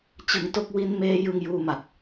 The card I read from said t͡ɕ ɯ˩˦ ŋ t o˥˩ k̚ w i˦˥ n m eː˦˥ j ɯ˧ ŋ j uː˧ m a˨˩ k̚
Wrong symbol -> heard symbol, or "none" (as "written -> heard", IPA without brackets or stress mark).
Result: none